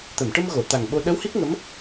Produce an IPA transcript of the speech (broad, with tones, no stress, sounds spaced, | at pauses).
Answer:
t̪ ə˨˩˨ m ʈ ə˧ m ɣ o˨˩˨ t̪ a˨˩ ŋ ɓ o˧ ɗ ə˧˥ w h i˦˥ k̚ ŋ ə˧˥ m